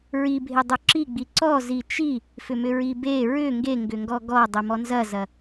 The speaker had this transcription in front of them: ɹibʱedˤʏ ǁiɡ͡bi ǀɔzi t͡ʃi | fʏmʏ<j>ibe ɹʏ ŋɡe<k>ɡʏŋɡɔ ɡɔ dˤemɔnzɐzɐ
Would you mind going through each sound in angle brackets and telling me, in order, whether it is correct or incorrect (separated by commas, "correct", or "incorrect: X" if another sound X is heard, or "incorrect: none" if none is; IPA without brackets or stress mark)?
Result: incorrect: ɹ, incorrect: ŋ